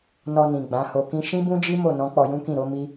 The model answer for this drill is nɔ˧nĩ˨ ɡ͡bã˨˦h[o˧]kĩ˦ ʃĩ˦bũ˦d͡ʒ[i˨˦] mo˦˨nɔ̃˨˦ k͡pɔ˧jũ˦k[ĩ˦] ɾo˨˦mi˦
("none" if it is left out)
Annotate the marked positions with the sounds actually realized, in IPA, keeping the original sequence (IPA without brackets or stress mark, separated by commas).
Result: o˧, i˦, ĩ˦˨